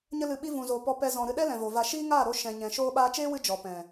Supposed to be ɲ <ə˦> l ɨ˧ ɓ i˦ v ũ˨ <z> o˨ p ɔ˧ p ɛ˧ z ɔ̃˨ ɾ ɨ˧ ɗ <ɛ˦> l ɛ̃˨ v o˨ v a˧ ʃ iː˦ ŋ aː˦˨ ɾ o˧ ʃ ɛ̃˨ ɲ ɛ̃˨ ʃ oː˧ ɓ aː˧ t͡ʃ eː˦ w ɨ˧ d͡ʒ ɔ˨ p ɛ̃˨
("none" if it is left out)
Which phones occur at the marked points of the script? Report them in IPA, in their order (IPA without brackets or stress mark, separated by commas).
ə˦, z, ɛ˦